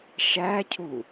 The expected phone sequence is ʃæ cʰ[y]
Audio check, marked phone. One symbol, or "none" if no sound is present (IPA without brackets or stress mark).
u